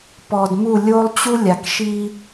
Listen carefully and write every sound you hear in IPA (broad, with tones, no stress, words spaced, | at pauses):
pɔ˨dmu˦˨ lʲo˦lˠt͡ɕu˦lʲa˨kʃi˦